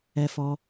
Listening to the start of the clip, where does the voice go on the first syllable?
high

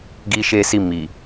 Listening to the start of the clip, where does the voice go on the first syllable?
high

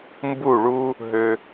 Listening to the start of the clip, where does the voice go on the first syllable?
falling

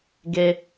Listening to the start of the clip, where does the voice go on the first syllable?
high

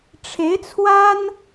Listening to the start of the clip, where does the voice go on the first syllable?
rising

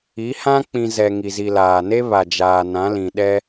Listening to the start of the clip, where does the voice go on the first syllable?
rising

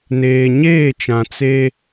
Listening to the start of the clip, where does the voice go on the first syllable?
low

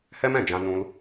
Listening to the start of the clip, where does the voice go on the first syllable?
high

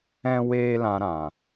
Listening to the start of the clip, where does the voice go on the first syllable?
high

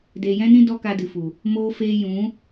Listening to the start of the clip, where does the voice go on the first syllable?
low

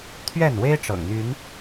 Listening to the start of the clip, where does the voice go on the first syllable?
falling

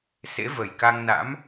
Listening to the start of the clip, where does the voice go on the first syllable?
rising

